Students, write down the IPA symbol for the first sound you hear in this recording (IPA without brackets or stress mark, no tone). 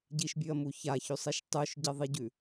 ɟ